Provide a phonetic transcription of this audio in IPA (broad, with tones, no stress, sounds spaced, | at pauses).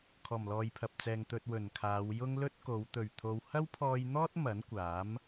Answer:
kʰ ɔː˨˩ m l ɔː˨ j pʰ ɐ˨ p̚ t͡s ɛː˨ ŋ t̪ ɵ˧ t̚ w ɵ˨˩ n kʰ aː˨˧ w j ʊ˥ ŋ l ɵ˥ t̚ k o˨˧ w t̪ ɵ˨˩ ɥ t̪ʰ o˨ w h ɐ˥ w pʰ ɔː˧ j n̪ ɔː˥ t̚ m ɐ˨˥ n kʷ aː˨˥ m